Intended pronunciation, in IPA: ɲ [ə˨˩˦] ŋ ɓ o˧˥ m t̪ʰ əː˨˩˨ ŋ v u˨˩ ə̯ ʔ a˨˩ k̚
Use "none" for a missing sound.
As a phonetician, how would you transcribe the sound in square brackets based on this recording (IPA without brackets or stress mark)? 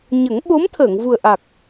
ə˨˩˦